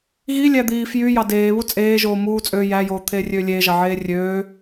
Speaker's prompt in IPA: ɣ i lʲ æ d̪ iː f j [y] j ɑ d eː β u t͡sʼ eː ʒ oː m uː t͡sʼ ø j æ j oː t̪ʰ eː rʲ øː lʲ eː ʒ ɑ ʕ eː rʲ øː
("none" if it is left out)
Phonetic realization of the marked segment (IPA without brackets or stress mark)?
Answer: y